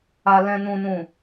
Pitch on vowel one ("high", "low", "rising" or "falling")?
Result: low